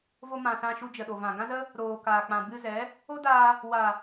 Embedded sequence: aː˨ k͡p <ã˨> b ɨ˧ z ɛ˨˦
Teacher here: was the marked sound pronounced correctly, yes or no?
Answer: yes